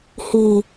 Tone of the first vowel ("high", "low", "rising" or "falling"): low